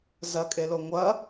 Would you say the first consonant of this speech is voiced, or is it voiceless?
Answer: voiced